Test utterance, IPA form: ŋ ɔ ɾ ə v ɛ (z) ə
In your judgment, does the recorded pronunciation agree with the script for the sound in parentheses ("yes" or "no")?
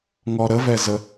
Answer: yes